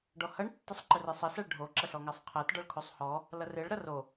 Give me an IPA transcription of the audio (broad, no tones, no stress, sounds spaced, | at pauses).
ɖ ɔ h ɐ ɳ tː ɪ sˤ ǃ ə r ɪ sˤ ɐ s æ ɭ ɖʱ o ǁ ɐ ɬ ɔ ŋ æ sˤ qʰ æ t ɖ ɔ ɭ kʰ o sˤ h ɔ | l ɐ r ɪ ɭ ɾ ɐ r o